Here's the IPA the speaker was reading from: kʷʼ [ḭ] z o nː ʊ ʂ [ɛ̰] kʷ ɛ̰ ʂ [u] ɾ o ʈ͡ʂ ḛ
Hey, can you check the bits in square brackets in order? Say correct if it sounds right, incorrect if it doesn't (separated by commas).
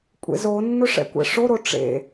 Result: incorrect, correct, incorrect